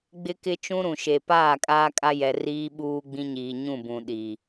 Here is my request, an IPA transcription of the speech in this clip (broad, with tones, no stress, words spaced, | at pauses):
ɡ͡bɪ˦kɪ˦ t͡ʃũ˦ɾũ˨ʃe˨ paː˦˨kʼaː˦kʼa˦ jɛ˨ riː˦ɓuː˦ ɡ͡bĩ˦ɲiː˨ ɲũ˦˨bũ˨ ɗi˨